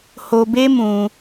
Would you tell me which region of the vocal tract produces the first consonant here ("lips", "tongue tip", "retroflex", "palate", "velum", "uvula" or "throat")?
throat